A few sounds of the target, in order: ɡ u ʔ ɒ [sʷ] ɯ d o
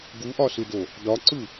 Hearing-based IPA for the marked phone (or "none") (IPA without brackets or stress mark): s